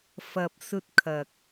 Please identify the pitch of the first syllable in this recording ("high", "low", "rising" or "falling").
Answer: low